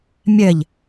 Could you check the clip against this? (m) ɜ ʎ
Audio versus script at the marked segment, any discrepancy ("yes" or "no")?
yes